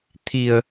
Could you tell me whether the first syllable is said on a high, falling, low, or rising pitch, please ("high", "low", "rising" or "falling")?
low